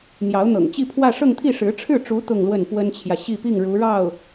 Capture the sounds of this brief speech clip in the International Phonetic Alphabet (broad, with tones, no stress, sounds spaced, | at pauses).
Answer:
n̪ j ɑ˧˥ ʊ̯ n̪ ɤ̰˨˩ ŋ t͡ɕ i˥˧ pʰ w ä˥˧ ʂ ɤ˥˧ ŋ t̪ʰ i˥˩ ʂ ɻ̩˧˥ ʈ͡ʂʰ ɻ̩˥˩ ʈ͡ʂ u˧˥ t̪ ʊ˥˧ ŋ l w ə˥˩ n p w ə˥ n t͡ɕʰ j ä˨ ɕ i˥˧ p i˥˩ ŋ ɻ u˧˥ ɻ ɑ˥˩ ʊ̯